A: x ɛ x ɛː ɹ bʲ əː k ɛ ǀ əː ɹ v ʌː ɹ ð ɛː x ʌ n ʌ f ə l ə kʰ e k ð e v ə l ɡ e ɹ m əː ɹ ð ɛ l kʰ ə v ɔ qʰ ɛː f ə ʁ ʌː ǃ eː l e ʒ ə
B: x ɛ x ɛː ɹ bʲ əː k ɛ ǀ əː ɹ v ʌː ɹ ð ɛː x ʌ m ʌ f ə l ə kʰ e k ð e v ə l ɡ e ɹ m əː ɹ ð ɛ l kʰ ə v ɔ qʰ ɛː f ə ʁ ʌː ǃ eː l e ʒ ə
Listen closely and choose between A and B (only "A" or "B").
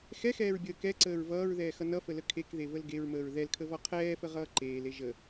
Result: A